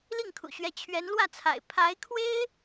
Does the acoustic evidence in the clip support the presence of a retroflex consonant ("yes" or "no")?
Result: no